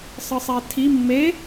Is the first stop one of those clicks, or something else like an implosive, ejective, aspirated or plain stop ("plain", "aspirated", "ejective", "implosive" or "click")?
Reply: aspirated